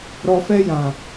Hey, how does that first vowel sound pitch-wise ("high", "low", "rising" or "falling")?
low